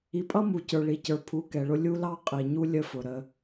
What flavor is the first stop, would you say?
ejective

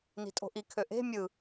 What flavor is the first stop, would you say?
ejective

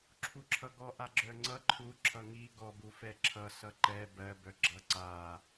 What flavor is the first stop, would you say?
click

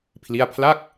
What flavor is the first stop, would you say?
aspirated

